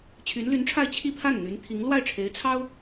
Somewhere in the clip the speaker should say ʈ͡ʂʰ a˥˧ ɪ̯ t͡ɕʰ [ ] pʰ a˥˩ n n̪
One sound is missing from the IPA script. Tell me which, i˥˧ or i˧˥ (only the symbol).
i˥˧